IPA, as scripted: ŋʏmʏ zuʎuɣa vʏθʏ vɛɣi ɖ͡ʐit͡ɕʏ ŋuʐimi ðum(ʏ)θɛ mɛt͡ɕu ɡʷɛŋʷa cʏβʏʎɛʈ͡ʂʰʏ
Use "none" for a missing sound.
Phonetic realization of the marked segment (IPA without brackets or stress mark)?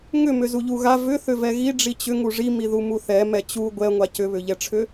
u